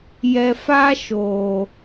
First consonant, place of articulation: palatal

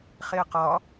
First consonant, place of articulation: uvular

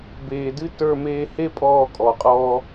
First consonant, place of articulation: labial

